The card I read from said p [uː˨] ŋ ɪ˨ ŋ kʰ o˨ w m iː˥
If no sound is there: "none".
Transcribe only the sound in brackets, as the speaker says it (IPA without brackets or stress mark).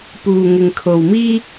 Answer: uː˨